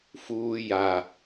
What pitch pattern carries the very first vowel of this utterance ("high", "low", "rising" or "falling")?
low